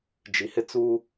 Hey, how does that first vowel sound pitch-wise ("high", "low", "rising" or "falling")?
low